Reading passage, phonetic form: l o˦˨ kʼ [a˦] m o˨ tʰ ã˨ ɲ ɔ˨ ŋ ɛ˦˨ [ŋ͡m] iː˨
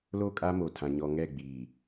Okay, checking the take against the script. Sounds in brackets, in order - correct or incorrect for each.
correct, incorrect: ɡ͡b

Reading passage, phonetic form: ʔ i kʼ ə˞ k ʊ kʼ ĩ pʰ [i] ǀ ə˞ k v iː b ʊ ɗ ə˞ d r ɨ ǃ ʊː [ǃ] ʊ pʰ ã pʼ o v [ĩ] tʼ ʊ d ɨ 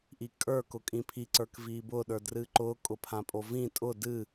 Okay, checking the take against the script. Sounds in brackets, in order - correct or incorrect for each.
correct, incorrect: kʼ, correct

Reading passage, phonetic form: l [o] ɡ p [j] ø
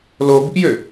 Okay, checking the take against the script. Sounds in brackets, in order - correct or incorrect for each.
correct, correct

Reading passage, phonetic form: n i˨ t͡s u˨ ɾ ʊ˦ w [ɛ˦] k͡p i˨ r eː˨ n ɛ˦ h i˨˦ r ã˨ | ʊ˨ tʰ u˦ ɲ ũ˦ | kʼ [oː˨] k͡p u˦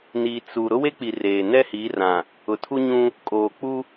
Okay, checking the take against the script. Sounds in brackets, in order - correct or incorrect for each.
incorrect: e˦, correct

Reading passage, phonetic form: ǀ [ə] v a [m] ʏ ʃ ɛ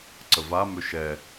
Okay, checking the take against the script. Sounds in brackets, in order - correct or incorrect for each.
correct, correct

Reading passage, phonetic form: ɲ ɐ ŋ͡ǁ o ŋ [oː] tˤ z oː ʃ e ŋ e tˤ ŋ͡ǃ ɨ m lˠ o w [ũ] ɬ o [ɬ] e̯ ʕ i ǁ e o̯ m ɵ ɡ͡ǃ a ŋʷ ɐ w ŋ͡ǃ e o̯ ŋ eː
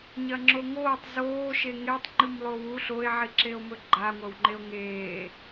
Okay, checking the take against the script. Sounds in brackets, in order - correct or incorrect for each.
correct, incorrect: u, incorrect: none

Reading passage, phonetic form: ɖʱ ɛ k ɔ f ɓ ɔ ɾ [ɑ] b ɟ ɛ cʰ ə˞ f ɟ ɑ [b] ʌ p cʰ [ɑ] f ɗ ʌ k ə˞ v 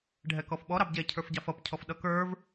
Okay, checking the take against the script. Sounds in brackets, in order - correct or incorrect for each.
correct, incorrect: f, incorrect: ɔ

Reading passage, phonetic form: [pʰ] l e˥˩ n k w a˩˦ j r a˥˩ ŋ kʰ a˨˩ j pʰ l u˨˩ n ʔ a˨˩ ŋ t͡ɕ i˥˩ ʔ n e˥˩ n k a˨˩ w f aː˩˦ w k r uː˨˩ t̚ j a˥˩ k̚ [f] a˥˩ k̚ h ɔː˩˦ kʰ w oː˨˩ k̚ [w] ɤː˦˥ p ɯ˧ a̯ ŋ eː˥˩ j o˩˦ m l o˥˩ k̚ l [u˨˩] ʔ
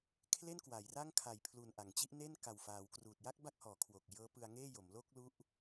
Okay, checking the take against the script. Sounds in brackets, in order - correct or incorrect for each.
incorrect: kʰ, incorrect: b, incorrect: j, incorrect: u˦˥

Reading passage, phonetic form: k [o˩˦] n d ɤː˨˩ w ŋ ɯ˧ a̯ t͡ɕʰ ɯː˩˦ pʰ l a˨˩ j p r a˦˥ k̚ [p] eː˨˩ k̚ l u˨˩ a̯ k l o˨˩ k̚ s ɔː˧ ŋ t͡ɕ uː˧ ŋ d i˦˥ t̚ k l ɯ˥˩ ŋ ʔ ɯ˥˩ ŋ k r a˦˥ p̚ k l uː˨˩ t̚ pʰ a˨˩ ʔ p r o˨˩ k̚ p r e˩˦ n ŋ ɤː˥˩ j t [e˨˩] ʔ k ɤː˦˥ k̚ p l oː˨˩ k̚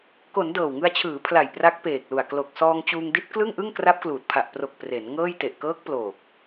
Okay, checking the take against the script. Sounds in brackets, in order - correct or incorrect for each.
correct, correct, correct

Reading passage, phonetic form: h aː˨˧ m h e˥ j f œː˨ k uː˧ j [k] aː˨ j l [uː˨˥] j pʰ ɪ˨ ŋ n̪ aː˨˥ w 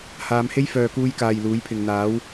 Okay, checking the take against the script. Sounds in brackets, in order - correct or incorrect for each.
correct, correct

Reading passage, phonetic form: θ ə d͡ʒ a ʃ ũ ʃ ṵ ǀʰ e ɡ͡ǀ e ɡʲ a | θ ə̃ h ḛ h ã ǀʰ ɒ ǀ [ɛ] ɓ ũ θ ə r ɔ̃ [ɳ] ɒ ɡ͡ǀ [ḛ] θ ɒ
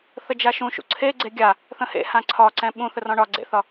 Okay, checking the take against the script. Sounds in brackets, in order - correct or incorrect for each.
incorrect: ɛ̃, correct, correct

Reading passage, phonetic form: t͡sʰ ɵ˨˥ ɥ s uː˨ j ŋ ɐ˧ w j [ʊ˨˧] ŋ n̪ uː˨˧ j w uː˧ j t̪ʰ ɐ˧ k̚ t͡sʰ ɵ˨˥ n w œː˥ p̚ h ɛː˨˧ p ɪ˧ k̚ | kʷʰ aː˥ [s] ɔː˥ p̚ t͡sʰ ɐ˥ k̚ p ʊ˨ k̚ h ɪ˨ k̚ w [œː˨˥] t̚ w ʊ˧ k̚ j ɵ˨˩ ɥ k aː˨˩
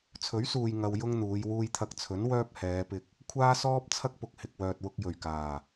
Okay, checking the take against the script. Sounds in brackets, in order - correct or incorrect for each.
incorrect: ʊ˥, correct, incorrect: œː˨

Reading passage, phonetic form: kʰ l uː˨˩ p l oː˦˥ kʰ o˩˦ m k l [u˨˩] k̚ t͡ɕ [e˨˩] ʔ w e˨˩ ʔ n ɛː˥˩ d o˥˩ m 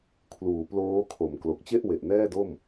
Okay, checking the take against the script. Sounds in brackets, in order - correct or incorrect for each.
incorrect: o˨˩, incorrect: e˥˩

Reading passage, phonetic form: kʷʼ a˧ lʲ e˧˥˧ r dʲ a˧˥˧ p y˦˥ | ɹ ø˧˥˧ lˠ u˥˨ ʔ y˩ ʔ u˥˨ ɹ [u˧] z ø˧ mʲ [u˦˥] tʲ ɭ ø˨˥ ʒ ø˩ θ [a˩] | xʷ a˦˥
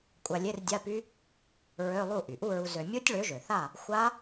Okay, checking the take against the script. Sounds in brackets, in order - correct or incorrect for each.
correct, correct, incorrect: a˥˨

